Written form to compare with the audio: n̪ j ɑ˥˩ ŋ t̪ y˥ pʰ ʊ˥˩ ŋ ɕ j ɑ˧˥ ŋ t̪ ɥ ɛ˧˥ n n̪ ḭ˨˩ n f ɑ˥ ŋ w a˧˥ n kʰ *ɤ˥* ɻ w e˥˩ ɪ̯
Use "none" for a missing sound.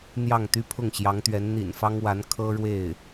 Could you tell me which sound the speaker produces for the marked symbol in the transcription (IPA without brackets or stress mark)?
ɤ˥